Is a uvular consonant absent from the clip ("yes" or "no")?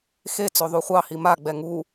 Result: no